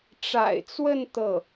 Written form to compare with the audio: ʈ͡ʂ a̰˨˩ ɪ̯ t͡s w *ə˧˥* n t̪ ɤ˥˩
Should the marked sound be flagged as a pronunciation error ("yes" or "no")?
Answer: yes